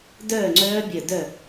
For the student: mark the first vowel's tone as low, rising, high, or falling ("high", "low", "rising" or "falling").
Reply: falling